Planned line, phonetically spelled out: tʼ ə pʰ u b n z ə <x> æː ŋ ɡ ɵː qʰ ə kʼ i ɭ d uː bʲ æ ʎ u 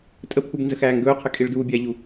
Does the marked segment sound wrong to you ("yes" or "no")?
no